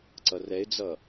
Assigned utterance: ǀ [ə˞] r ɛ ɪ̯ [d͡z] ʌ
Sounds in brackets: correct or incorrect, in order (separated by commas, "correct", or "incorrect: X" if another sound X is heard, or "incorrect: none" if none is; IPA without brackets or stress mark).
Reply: incorrect: ʌ, correct